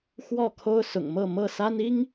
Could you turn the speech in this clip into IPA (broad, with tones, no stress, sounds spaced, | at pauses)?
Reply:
x w ɔ˥˨ kʰ o˦ ʊ̯ s ʊ̰˨˩ ŋ m ɤ˥˨ m ɤ˥˨ s a˦ n i˦ ŋ